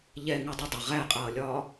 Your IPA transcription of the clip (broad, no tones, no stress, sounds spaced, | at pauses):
ʎ ɛ ŋ u dˤ ə dˤ ə ʁ æ qʼ ʌː lʲ ɒː